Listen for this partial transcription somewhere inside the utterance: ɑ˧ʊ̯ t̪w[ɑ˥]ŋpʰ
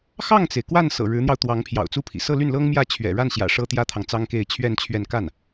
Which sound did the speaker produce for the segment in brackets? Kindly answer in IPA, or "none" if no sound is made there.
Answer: ɑ˧˥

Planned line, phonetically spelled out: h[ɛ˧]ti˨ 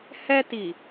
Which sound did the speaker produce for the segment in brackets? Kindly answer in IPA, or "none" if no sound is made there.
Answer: ɛ˧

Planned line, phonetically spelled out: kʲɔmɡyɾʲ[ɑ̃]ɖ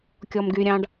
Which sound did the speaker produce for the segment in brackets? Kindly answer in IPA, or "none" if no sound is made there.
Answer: ɑ̃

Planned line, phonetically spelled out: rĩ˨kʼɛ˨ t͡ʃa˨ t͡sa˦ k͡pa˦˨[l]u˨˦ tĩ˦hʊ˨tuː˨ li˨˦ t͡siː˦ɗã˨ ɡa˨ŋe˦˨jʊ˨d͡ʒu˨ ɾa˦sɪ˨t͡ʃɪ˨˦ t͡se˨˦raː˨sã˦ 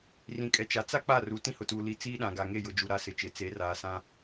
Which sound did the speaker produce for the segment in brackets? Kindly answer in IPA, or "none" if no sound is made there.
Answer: r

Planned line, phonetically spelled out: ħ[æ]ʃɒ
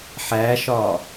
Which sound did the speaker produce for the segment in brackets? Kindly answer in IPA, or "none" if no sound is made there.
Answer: æ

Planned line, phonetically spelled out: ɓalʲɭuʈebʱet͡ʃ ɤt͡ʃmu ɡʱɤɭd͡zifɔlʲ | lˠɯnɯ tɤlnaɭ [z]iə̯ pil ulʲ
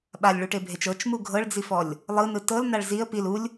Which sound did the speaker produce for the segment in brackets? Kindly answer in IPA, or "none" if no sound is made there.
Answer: z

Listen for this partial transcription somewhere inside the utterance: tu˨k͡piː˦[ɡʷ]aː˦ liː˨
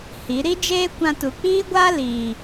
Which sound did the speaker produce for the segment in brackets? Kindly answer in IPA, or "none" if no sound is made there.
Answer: ɡʷ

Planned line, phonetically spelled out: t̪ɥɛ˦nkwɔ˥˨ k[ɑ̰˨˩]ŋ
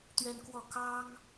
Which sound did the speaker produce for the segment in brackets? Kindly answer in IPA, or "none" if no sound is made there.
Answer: ɑ˦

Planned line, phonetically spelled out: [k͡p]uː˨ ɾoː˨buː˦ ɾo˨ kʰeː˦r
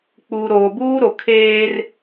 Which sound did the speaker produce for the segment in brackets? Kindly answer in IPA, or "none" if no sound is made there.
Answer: k͡p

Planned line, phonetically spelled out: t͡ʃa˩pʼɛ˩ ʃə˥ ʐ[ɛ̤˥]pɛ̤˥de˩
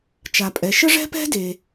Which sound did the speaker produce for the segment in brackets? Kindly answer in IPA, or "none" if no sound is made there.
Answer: ɛ̤˥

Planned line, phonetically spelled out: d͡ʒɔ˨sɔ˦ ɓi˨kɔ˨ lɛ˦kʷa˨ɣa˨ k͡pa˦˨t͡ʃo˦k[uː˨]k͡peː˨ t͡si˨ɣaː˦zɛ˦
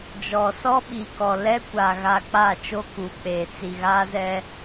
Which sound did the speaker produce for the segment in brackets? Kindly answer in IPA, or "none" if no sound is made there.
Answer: uː˨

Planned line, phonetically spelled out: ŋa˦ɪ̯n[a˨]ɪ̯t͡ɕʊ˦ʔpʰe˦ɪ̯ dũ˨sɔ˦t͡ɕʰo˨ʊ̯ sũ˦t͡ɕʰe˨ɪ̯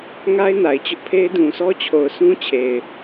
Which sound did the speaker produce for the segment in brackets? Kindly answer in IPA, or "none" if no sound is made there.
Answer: a˨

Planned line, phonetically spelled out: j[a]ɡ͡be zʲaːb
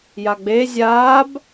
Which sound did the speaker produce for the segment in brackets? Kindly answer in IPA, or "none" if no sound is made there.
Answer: a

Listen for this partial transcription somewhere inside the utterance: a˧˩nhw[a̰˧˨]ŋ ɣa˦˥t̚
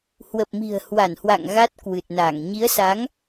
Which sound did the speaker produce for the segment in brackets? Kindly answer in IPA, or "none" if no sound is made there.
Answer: a̰˧˨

